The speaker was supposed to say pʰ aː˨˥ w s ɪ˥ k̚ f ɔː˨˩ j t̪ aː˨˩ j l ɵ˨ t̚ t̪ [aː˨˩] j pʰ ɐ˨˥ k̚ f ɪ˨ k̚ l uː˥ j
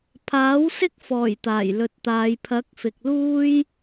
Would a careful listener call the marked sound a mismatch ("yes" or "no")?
yes